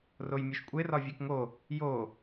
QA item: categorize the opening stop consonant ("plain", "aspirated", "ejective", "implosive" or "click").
ejective